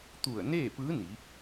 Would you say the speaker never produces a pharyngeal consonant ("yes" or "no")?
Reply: yes